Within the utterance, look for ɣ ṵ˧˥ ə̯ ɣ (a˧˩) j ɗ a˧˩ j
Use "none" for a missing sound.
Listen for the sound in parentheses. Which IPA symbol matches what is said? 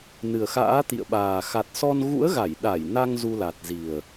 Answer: a˧˩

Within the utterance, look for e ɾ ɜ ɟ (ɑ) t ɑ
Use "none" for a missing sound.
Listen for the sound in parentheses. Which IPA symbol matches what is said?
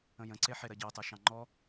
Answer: ɑ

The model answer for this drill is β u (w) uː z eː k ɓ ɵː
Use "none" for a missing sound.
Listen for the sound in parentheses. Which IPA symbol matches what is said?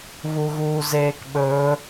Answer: ɣ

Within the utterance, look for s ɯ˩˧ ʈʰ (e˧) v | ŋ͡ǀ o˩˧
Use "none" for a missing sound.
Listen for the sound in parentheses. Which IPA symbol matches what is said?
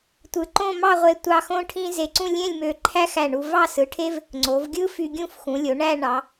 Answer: e˥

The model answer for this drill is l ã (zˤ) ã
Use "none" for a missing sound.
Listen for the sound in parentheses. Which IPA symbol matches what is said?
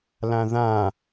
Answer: ð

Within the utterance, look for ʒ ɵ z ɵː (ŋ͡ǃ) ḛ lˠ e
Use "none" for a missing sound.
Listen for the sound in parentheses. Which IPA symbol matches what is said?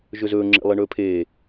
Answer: ŋ͡ǁ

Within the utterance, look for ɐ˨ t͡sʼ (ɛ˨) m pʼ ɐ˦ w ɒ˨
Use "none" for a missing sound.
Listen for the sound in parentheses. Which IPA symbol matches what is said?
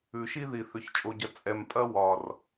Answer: ɛ˨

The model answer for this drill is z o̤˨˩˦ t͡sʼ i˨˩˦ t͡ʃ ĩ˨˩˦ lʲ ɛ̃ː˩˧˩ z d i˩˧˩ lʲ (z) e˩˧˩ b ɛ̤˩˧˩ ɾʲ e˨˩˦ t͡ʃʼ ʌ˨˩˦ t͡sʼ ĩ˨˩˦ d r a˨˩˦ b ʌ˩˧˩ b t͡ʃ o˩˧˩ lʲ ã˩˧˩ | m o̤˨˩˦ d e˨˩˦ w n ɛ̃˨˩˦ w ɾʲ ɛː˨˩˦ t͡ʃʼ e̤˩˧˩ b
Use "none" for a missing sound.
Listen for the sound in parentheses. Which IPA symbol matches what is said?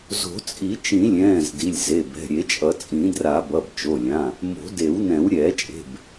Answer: z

